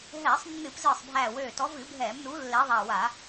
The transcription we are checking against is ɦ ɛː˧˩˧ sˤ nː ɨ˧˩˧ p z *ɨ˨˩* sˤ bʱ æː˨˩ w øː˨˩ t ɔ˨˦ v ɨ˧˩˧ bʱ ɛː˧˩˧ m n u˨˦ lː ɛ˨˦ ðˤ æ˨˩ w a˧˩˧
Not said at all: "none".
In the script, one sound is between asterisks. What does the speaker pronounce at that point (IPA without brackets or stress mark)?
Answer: ɨː˨˩